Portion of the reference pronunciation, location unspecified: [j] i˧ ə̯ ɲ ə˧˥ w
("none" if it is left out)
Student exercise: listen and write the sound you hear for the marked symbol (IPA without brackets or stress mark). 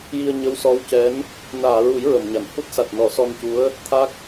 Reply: j